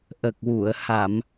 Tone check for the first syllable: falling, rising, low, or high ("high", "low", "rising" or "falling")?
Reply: low